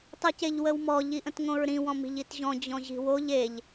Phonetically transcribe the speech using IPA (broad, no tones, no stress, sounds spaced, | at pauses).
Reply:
tˤ i c e ʎ w ə w m ɔ ʎ i ʔ ə̃ t ŋ õ ɹ ɾ ĩ w ɔ̃ m i̤ ʎ i t ʑ ɔ̃ d͡ʑ ɔ̃ ʑ i̤ w o ʎ e ʎ